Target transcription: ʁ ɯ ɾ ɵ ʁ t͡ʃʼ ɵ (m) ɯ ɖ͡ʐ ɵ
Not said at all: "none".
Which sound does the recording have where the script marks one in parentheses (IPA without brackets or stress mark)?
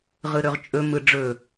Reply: m